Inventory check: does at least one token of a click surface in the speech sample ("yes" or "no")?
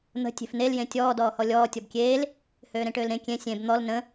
no